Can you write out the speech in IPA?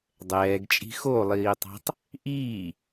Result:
dˤ ɛː ɡ t͡ʃʼ i̤ x o lˠ iː tˤ ɑ̤ tˤ | ʔ iː

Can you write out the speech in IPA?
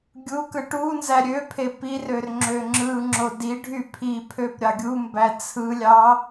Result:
ɡʲ u k ɯ ʈ u n z æ ɾʲ ø pʰ e p i r ø r ŋ͡ǁ ø ŋ͡ǁ ɯ ŋ͡ǁ o d i ɖʱ y pʰ i pʰ ø p ɾʲ ɑ ɡʲ u m b æ t͡sʰ ɯ lʲ ɑ

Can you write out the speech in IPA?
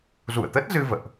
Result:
z ṵ˧˨ ə̯ t̪ ə˦˥ t̚ z ɨ˧ v ə̰ː˧˨ ʔ

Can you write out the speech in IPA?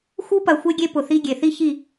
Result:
x u˦ p ɐ˨ xʷ e˦ ɡʲ e˦ p ʊ˨ θ i˦ ɡʲ e˨ θ i˦ ç i˦˨

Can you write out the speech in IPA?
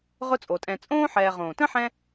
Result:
ʁ ʊ˦ t͡sʼ o˩ tʼ ɛ̃˨ t͡sʼ õː˥ ħ ɛː˨ ʁ õː˩ t ə̃˥ ħ ɛ̃˦

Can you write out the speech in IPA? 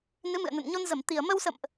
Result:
n ɨ˨˦ m ɨ̰˧˨ ə̯ n ə̰˧˨ n ɲ o˧ n z ə˧˩ m t̪ i˨˩ ə̯ m ə˧ w s ə̰˧˨ m ʔ

